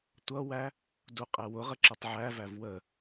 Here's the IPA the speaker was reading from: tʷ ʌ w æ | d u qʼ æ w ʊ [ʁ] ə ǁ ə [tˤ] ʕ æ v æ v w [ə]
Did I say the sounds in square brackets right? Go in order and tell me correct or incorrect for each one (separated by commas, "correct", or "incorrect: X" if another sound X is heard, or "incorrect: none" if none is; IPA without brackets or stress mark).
correct, correct, correct